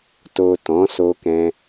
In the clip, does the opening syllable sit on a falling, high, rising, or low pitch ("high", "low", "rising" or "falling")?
low